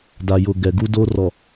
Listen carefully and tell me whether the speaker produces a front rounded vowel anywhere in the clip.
no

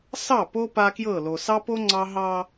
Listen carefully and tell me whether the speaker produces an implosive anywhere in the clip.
no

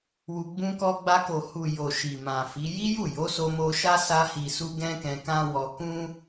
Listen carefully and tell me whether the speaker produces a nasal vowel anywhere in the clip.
yes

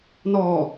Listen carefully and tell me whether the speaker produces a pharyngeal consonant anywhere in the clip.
no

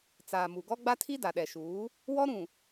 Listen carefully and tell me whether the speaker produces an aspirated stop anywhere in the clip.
yes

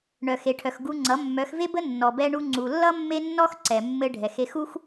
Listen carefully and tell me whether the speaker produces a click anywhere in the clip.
yes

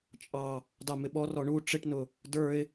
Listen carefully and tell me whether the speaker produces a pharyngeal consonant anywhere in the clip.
no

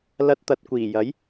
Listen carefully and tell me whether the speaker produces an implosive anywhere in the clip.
no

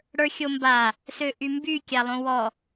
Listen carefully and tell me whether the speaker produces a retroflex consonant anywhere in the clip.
yes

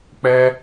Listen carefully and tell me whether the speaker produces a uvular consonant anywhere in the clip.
no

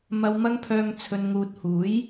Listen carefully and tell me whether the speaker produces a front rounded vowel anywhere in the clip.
yes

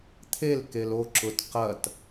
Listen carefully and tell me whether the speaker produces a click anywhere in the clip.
yes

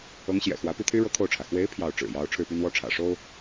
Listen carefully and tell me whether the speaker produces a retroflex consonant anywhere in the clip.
yes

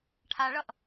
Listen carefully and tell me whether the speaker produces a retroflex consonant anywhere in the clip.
yes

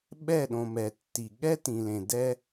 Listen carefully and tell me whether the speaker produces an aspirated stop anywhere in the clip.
no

